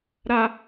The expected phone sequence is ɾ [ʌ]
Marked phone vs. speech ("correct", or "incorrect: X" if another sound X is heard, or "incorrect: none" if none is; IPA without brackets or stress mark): incorrect: a